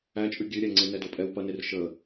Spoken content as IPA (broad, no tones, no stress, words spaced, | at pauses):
æt͡ʃʼʉ ɡʲʉɾʲæ ŋ͡ǀenɛdopʼɛw pɐner ʃə